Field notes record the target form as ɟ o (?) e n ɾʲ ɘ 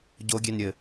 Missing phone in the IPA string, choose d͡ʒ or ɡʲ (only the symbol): ɡʲ